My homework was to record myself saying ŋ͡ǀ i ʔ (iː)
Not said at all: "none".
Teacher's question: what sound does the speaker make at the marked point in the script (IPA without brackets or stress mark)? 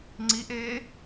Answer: eː